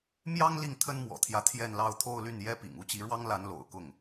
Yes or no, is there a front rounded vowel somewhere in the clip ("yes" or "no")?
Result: yes